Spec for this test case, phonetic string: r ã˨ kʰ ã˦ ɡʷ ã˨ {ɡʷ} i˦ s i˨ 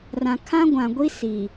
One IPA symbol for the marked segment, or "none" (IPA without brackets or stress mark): ɡʷ